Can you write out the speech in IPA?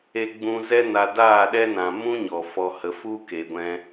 e˧ ɡ͡b ũ˧ z ɛ˦ n a˧ d aː˦˨ ɗ ɛ˦ n ã˨ m ũ˦ ɲ ɔ˨ f ɔ˧ h ə˨˦ f u˦ k e˨ ɡʷ ɛ̃˧

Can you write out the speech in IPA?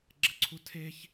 ɡ͡ǁ ə ǀʰ u tʰ e ç

